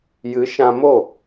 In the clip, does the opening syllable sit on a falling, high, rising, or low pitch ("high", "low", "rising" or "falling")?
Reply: rising